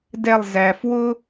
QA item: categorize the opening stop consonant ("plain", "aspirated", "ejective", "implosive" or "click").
plain